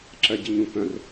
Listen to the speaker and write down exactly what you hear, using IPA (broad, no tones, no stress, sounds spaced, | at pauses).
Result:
ǁ ɜ ɟ ɪ ɲ ũ k œ̃ r